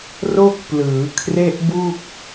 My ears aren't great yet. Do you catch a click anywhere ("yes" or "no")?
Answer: no